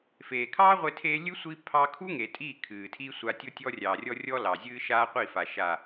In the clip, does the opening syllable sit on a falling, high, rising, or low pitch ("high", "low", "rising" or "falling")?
low